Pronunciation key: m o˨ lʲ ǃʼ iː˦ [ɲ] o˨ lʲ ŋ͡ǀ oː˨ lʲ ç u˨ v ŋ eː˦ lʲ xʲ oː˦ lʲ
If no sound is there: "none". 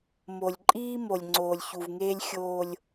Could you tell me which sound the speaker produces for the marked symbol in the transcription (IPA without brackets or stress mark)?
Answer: m